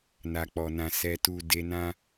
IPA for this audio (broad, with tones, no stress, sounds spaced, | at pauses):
n a˨ k͡p ɔ˨ n ã˨ s ɛ˨ t u˨ d e˧ n ã˦